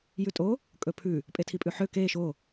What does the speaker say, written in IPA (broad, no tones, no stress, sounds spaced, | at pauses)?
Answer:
j ʉ tʼ o | kʼ ɵ pʰ ʉ | pʼ e tʰ i pʼ ʉ ħ ø k e ʃ o